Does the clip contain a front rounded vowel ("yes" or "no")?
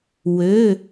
yes